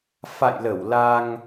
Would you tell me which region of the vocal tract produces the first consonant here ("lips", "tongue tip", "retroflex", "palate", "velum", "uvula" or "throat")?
lips